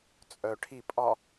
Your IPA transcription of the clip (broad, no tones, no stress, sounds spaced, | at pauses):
t͡sʼ œ ʈʰ i pʼ ɒ